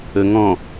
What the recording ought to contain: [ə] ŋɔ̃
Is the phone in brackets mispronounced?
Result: no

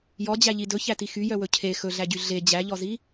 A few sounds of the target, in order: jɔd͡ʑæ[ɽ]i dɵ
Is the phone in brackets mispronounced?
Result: yes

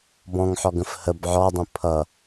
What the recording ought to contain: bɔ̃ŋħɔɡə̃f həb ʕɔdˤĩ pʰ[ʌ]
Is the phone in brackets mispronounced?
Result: no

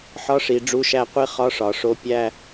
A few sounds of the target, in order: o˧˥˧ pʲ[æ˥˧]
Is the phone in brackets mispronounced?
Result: no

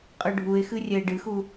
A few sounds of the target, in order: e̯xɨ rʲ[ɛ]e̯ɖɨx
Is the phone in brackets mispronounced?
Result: no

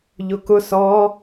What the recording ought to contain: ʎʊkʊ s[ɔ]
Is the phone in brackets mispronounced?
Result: no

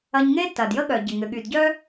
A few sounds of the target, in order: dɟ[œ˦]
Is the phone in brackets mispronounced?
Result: no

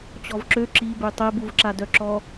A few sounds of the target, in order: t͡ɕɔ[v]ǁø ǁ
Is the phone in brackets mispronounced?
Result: no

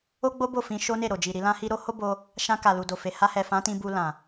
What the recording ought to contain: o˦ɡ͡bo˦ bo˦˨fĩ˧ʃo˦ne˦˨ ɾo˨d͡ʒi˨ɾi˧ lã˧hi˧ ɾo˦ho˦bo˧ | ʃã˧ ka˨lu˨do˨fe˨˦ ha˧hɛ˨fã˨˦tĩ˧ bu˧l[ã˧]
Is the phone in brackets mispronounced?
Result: yes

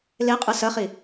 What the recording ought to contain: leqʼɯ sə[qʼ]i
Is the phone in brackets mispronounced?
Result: yes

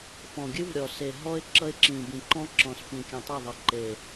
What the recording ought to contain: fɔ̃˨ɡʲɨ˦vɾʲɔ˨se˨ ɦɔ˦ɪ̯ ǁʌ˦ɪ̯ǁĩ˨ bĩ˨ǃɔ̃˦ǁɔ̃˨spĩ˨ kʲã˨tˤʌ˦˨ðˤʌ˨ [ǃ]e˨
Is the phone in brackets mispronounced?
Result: no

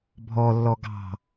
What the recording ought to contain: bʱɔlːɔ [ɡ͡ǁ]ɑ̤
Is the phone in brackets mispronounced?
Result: yes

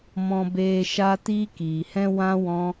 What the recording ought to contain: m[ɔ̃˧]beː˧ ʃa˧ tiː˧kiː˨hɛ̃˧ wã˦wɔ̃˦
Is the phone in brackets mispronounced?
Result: no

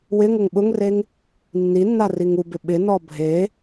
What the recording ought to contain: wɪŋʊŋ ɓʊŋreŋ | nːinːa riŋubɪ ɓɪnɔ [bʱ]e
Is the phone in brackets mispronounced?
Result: no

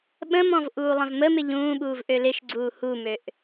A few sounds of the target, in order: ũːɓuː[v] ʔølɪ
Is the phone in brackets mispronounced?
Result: no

